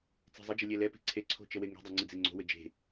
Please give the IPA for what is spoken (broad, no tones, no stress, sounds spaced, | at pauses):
t͡s e̤ zˤ ə d͡ʒ ə lʲ ɛ l ɛ p e̤ ǀʰ e ǀʰ o̤ t͡ʃ ə w e ŋ e̤ dˤ ɛ ŋ͡ǀ ɘ d͡z e ŋ͡ǀ o̤ w ɘ d͡ʒ e̤